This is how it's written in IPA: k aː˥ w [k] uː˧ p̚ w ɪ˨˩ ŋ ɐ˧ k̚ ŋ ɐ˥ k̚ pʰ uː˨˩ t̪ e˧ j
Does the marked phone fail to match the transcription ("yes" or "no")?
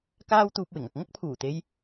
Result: yes